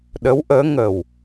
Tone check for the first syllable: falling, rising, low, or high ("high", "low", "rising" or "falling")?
rising